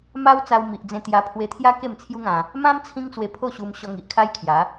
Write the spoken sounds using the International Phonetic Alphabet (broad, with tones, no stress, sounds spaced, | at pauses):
m a˦ w t͡s a˧ w m i˨ ʔ d͡z ẽ˧ t̪ j a˧ pʰ w e˧ t̪ʰ j a˦ k e˥˧ m t͡sʰ j u˦ ŋ ã˧ | m ã˦ m t͡sʰ ĩ˦ ŋ t͡s w e˧ pʰ o˥˧ ɕ u˧ m ɕ ɔ˧ ŋ i˨ ʔ kʰ a˦ j kʰ j a˨˦